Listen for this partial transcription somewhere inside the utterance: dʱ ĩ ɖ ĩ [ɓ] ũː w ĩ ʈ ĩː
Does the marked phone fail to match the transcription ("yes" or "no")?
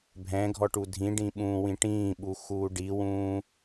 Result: no